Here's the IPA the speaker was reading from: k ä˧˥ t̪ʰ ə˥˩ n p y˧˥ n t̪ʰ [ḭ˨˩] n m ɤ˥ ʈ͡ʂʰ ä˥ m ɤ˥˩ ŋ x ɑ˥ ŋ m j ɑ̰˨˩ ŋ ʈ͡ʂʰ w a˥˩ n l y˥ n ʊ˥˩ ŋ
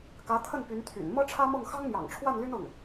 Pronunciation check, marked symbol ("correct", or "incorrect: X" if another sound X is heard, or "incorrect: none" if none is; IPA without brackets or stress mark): incorrect: y̰˨˩